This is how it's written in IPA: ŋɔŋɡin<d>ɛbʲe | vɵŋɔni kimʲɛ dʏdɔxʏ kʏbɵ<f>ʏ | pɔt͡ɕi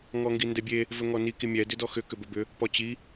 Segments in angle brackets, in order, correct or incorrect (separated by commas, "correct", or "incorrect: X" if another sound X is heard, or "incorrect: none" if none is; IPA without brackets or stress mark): correct, incorrect: b